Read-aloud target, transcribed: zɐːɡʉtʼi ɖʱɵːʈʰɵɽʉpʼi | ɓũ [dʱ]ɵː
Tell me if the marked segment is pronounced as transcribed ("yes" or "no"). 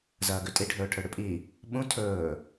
no